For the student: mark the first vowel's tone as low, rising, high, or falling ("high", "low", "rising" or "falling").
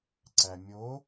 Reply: low